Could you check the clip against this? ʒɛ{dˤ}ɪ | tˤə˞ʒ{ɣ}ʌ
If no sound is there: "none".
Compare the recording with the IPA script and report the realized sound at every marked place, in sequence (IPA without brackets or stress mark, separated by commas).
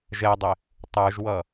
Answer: dˤ, w